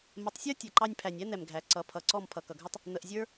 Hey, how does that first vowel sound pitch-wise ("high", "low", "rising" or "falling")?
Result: rising